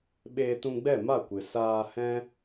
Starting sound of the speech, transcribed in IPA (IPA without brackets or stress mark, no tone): ɓ